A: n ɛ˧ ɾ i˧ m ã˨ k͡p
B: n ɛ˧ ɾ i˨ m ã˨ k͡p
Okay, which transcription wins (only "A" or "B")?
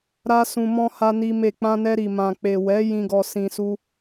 B